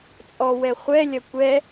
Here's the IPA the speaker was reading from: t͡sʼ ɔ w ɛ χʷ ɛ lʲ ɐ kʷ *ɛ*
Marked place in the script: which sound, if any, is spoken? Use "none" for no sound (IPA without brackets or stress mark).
ɛ